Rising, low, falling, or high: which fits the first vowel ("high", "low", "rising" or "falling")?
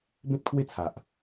high